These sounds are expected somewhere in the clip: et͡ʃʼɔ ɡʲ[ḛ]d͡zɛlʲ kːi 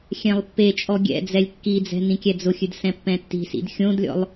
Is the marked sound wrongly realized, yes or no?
yes